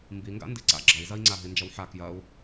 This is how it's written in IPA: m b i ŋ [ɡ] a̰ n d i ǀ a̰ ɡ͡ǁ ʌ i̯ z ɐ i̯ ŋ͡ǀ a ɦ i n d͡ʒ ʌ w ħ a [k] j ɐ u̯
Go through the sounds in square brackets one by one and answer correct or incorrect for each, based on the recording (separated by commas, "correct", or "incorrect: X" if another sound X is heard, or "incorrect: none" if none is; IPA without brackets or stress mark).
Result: correct, correct